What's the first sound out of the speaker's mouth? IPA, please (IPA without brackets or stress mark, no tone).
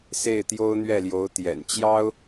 s